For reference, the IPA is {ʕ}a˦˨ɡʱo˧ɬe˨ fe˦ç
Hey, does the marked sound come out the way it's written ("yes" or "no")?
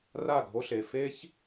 no